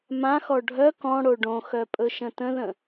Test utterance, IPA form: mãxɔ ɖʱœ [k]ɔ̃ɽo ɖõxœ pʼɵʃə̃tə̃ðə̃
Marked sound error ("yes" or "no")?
no